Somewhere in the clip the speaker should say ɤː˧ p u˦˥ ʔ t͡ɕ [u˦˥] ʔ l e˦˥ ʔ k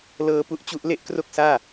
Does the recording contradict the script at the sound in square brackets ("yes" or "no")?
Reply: no